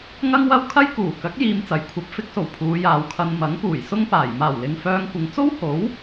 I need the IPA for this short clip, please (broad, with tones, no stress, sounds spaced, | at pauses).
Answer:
ŋ ɐ˥ ŋ w ɐ˥ w kʰ ɐ˥ j k uː˨˩ k ɐ˨˥ k̚ j iː˧ m t͡s ɐ˨˥ j kʷʰ ɐ˨˥ p̚ f ɪ˧ k̚ s o˨˩ w pʰ uː˨˧ j aː˨˧ w kʰ ɐ˧ n m ɐ˨˥ ŋ p uː˨˩ j s ʊ˥ ŋ p aː˨˩ j m aː˨˩ w l ɪ˨ ŋ f œː˧ ŋ kʷ ɪ˨ ŋ t͡s o˥ w h o˨˥ w